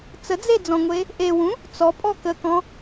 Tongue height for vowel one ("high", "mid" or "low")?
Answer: mid